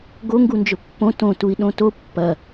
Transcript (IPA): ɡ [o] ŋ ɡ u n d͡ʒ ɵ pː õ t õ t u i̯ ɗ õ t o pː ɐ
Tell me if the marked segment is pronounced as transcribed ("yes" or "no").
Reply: yes